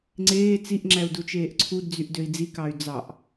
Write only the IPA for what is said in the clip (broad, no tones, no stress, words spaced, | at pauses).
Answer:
ŋ͡ǀeː t͡siʔŋ͡ǁæu̯ dut͡ʃeːʔǀʰudd͡zyʔ døi̯d͡zikɑy̯ d͡zɑʔ